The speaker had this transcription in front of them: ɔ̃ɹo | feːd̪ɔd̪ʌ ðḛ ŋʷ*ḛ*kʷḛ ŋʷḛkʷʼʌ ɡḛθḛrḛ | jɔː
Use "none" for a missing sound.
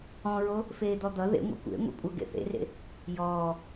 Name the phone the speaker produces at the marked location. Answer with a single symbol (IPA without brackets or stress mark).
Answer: ḛ